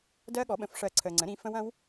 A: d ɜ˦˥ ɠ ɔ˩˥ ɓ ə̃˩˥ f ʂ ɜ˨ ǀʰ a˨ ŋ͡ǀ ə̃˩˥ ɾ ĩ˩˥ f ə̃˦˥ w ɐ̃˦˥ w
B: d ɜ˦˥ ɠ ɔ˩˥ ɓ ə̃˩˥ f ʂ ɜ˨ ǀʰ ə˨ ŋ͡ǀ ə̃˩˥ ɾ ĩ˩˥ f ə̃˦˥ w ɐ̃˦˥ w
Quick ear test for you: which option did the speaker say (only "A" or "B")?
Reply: B